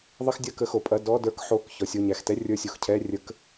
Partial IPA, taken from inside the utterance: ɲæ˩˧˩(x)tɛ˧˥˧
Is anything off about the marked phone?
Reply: no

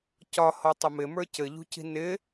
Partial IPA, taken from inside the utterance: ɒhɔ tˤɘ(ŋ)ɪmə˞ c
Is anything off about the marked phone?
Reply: yes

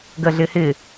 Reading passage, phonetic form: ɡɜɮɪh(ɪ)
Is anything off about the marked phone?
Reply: no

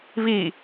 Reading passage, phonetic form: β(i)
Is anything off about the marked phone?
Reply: no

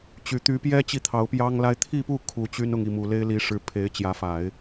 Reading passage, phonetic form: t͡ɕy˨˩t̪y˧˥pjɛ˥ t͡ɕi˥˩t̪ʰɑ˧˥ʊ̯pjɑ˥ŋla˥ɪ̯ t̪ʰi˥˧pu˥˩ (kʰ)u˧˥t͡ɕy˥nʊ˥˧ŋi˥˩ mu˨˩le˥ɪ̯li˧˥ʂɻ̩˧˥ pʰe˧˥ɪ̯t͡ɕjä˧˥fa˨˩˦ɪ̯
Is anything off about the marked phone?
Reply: no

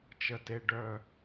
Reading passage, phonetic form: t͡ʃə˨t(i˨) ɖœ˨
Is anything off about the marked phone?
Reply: yes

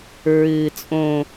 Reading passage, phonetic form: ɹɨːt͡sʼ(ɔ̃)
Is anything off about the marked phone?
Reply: yes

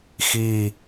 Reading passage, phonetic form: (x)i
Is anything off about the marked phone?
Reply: no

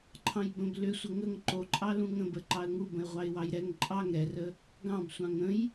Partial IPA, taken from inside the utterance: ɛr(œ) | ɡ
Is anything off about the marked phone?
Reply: yes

